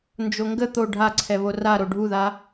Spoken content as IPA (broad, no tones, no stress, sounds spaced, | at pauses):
n d͡ʒ o ŋ ɡ ə t̪ o ɖʱ a ǀʰ ɛ β o r a ɾ o ɖʱ u ð a